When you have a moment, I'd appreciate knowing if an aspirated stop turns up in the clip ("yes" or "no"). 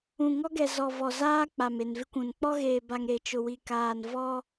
no